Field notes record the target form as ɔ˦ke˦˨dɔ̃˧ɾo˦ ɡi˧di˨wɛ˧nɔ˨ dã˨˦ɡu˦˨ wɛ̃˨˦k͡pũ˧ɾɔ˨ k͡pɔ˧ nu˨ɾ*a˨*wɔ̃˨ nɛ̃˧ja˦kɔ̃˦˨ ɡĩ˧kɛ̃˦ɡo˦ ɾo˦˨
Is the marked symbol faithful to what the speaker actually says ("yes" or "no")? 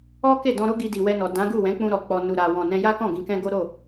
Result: yes